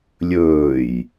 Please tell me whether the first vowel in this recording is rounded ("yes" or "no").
yes